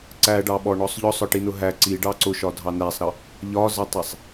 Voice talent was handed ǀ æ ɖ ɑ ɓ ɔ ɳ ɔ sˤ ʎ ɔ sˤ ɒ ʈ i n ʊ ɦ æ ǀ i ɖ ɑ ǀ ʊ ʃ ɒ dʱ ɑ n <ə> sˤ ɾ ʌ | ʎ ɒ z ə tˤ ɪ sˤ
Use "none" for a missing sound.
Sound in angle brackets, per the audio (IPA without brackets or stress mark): æ